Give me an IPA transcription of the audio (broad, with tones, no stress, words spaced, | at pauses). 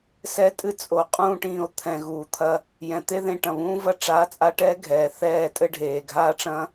sɛ˧tʼɨ˧t͡sʼo˨ qʼũː˧ʈĩː˨o̯t̪ʰɛ̃˨ ɣuː˨t̪ʰɐ˧ | jɛ̃˨t̪e˦ ðẽ˧ʈɐ̃˨βũː˦vɐ˦ ʈ͡ʂaː˨˦t͡sʼa˧ʈɛː˧ ɡʱɛː˨θɛː˦˨tʼɘ˦ ɖʱeː˨ɡʱaː˦ʈ͡ʂɐ̃˦